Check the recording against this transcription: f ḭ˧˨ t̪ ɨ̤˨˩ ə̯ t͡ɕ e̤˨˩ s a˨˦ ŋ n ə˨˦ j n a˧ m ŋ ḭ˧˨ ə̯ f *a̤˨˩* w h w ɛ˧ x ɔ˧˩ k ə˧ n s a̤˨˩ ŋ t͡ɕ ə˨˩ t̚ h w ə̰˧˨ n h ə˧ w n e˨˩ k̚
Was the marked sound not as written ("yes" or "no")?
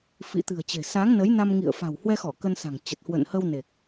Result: no